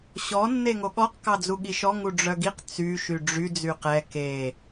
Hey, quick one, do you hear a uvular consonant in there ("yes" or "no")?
yes